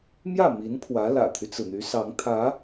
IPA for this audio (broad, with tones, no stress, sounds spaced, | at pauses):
m j ä˥˩ m i˧˥ n pʰ w ä˧˥ l ä̰˨˩ t̪ʰ y˦ t͡s ɹ̩˩ n̪ y˧˥ s ɑ˧˥ ŋ t̪ʰ ä˧˥